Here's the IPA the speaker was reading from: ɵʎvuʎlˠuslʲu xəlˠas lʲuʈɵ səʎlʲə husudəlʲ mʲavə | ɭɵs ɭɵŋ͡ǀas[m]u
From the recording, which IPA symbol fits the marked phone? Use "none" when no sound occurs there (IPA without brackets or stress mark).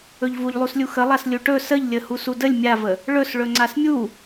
mʲ